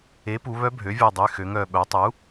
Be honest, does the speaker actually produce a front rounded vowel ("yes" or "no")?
yes